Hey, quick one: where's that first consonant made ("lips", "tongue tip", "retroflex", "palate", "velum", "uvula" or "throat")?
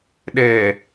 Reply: tongue tip